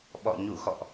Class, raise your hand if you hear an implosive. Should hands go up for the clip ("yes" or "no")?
yes